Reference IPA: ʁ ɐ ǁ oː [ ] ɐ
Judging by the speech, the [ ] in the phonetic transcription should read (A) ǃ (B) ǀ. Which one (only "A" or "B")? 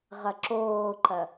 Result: A